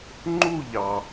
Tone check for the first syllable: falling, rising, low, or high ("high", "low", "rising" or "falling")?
falling